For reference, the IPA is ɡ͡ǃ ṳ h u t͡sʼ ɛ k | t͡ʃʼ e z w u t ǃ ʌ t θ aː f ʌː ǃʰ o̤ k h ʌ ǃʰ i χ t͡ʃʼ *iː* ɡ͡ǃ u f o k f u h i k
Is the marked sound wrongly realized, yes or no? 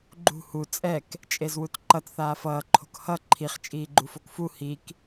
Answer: no